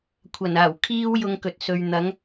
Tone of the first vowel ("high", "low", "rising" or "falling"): low